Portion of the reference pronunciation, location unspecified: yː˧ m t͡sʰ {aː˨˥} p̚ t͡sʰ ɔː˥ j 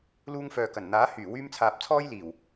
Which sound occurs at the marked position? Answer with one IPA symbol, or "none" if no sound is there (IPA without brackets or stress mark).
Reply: aː˨